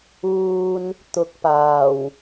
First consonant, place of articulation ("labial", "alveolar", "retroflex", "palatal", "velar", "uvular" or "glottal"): alveolar